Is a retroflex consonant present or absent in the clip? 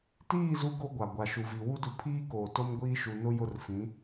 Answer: absent